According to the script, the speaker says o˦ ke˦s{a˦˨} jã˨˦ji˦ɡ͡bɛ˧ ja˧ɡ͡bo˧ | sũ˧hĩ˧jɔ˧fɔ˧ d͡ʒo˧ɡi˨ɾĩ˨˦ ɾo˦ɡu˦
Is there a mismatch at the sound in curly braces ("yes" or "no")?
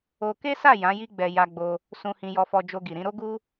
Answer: no